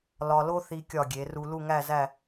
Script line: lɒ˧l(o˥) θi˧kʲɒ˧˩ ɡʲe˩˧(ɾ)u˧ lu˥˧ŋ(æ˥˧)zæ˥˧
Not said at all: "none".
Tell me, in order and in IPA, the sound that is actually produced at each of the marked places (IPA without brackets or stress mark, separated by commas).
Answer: o˥, r, æ˥˧